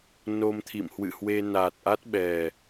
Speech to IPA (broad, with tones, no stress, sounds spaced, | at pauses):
n o˧ m t̪ʰ ḭ˧˨ m h w ɨ̰˧˨ h w e˧ n a˨˩ t̚ ʔ a˦˥ t̚ ɓ ɛ˨˩